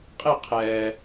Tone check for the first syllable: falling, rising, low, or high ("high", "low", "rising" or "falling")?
falling